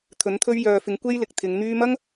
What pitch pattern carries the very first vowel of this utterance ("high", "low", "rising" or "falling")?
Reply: rising